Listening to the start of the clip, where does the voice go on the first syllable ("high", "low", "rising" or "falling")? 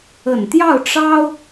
low